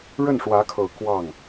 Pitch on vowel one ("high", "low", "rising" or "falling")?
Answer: falling